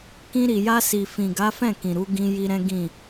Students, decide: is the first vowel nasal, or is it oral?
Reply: nasal